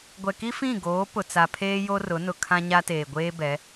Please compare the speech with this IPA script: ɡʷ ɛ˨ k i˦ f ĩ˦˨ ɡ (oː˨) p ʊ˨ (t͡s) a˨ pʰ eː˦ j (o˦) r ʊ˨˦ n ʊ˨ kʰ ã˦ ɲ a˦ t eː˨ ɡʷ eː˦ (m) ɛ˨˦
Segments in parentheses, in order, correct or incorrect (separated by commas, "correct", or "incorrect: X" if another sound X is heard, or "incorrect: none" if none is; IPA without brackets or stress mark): incorrect: oː˨˦, correct, correct, incorrect: b